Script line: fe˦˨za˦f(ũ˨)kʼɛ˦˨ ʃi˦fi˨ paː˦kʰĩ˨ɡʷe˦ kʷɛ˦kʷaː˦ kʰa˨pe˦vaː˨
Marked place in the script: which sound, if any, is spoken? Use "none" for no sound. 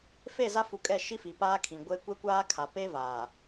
u˨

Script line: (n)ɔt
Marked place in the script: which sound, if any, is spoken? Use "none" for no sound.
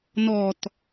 n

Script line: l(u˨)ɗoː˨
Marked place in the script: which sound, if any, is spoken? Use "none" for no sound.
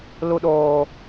u˨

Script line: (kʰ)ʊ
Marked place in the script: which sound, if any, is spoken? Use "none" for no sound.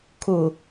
kʰ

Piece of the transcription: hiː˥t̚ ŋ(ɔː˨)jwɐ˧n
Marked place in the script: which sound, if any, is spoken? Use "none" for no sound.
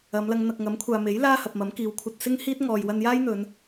ɔː˨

